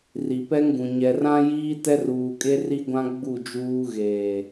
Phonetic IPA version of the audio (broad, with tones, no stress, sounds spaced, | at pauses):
r i˨ p ɛ˦ ŋ ɡ ũ˨ ɲ ɛ˨ r ã˦ j iː˦ t ɛ˦ r uː˨ kʼ e˦ r i˦ ɡʷ ã˦ ɡ͡b u˦˨ d͡ʒ uː˦ ɣ eː˨